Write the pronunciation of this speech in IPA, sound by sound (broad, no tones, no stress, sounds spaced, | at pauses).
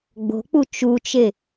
ɡ͡b o̤ k͡p u t͡ʃ u t͡ʃ e